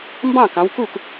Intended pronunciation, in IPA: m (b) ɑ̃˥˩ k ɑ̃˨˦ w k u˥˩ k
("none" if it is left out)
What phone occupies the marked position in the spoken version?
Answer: b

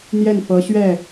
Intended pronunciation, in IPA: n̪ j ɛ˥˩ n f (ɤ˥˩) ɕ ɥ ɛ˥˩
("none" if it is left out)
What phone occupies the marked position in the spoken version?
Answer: ɤ˧˥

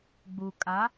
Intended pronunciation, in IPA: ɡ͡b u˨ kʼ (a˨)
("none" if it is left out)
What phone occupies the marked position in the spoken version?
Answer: a˨˦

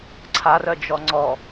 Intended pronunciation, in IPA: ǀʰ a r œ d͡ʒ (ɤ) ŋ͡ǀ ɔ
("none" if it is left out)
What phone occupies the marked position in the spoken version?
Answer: ɔ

